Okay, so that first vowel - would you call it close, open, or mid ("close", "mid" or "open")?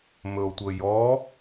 mid